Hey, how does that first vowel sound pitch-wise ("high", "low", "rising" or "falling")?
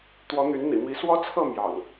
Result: rising